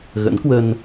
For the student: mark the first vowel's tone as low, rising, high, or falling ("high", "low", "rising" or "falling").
rising